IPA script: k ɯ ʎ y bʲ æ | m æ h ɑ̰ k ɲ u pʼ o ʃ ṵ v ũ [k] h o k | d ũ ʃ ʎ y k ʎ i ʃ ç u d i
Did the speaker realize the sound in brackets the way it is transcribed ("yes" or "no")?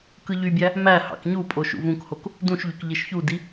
yes